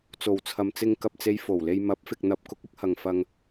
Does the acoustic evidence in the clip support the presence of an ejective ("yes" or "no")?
no